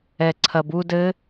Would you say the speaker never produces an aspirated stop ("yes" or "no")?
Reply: no